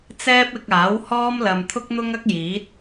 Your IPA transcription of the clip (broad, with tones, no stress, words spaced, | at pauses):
t͡sɛː˥p̚ɪ˧k̚aː˨˥w hɔː˥mlɐ˨m t̪ʰʊ˥k̚n̪ʊ˥ŋɐ˥k̚jiː˨˥t̚